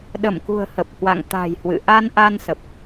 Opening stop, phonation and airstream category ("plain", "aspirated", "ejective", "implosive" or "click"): implosive